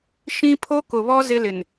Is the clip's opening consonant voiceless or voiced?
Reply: voiceless